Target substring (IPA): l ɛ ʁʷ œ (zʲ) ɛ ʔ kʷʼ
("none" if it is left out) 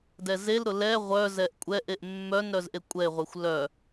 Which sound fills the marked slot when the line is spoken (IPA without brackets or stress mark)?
z